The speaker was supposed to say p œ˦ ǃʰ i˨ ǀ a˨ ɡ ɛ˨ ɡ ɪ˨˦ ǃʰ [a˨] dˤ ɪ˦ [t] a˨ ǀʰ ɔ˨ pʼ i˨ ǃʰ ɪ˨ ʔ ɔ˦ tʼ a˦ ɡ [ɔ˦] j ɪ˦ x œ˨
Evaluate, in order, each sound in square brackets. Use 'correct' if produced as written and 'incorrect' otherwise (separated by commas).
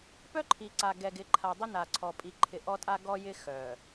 correct, incorrect, correct